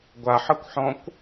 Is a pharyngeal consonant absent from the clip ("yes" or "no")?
no